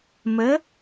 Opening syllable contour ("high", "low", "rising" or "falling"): rising